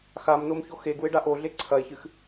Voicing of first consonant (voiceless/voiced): voiceless